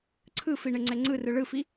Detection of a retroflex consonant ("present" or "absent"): present